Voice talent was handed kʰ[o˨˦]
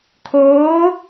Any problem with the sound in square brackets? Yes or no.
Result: yes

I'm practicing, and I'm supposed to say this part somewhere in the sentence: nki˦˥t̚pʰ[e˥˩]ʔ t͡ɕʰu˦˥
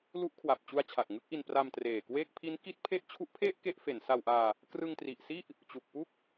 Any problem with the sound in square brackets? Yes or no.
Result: no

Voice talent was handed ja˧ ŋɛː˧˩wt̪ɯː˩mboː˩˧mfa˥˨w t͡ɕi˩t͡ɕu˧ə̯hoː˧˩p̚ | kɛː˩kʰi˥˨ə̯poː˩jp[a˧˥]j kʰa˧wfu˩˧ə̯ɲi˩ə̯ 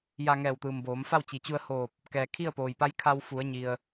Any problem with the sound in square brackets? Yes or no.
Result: no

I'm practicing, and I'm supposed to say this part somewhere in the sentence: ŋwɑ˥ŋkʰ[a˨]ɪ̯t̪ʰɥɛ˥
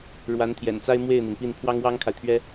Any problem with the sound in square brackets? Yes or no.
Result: no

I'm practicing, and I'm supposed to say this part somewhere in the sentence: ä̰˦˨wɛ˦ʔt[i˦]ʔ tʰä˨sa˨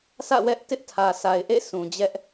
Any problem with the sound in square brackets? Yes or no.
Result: yes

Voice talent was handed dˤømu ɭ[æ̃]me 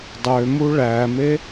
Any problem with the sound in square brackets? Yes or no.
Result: yes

